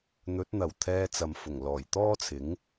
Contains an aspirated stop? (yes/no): yes